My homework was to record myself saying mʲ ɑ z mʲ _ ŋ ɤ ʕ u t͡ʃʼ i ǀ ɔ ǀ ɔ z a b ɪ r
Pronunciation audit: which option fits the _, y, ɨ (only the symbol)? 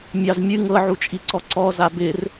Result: ɨ